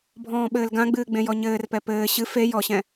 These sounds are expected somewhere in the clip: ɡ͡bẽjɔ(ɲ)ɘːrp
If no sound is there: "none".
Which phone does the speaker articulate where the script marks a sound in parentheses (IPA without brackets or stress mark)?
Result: ɲ